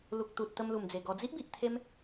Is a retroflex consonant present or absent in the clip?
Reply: absent